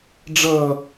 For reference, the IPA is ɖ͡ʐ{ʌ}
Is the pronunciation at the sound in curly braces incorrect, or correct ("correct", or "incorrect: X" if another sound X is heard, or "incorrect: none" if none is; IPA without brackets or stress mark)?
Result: correct